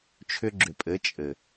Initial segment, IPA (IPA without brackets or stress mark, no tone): t͡ʃʰ